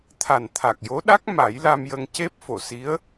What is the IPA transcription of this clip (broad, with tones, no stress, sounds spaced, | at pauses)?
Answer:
t̪ʰ a˨˩ n t̪ʰ a˨˩ k̚ j o˧˥ ɗ a˦˥ k̚ m a˨˩˦ j l a˧ m j ə˧ ŋ c e˦˥ p̚ f o˨˩˨ s i˧˥ ə̯